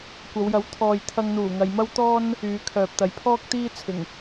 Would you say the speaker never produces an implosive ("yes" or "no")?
yes